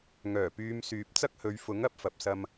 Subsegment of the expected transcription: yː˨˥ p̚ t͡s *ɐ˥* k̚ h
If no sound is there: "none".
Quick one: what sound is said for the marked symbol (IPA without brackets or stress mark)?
ɐ˥